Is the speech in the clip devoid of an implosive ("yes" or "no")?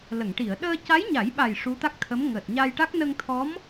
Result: no